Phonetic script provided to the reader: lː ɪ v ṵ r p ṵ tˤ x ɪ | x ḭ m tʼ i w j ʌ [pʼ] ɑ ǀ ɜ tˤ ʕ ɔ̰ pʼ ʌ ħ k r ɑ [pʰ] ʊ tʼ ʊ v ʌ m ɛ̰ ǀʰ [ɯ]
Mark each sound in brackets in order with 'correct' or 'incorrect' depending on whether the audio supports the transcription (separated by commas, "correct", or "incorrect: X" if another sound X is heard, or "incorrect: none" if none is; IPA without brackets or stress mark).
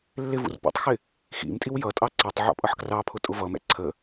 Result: incorrect: tʼ, correct, incorrect: ə